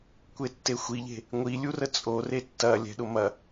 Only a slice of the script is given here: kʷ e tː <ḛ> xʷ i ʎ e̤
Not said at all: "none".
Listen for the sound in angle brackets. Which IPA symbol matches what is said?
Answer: e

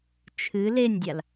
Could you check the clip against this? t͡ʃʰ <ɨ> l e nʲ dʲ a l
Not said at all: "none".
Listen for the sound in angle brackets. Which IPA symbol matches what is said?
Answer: ɨ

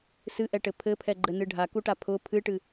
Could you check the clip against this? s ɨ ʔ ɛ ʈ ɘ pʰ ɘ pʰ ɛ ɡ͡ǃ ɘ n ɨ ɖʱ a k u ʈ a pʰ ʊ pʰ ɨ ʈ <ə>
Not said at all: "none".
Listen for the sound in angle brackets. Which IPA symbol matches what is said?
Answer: ɨ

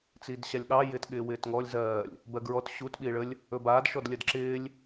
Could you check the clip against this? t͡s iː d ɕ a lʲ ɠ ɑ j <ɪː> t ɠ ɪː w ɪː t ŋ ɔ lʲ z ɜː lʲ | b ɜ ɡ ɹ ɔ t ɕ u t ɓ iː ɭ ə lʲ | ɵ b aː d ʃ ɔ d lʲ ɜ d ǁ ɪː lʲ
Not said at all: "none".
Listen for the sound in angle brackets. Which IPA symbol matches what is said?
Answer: ɪː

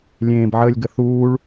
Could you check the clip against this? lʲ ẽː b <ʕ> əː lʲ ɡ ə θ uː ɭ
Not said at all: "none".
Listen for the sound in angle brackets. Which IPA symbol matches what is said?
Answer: ʕ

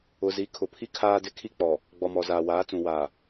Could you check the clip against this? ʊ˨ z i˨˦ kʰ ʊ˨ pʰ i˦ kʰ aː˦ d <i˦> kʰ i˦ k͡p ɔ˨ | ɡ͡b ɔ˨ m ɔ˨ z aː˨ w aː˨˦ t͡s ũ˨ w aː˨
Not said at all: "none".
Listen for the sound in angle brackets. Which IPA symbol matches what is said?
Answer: ɪ˦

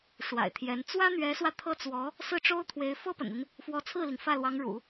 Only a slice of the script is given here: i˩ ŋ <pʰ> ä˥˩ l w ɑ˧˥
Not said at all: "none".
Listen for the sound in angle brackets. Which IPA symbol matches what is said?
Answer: f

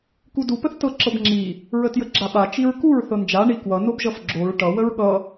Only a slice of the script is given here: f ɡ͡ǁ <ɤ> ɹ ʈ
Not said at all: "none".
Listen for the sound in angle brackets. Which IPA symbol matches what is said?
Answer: o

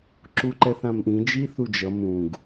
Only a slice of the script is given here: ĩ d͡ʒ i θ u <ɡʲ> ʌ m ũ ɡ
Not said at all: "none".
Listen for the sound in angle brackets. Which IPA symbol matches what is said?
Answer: d͡ʒ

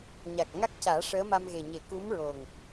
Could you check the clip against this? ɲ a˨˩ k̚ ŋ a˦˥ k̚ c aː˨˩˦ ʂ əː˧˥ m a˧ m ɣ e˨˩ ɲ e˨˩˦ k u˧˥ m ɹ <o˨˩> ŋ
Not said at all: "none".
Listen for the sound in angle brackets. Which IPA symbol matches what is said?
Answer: o˨˩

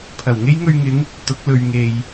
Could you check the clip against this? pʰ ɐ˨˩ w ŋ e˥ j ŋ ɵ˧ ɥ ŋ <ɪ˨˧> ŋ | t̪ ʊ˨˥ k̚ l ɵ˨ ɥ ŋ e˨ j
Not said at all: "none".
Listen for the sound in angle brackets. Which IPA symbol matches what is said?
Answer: ɪ˨˧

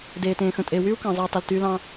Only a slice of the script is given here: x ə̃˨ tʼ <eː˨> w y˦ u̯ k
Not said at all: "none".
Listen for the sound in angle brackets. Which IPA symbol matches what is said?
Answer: eː˨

